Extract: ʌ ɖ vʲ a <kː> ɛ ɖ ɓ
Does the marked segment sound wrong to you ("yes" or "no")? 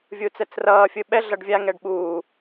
yes